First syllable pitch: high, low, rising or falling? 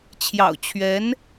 low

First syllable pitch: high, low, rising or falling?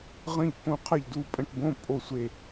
falling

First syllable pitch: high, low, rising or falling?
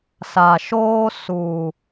low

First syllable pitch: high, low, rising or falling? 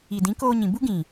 low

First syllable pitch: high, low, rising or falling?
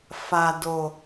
low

